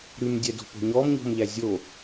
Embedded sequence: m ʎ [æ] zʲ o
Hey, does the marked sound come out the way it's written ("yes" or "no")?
yes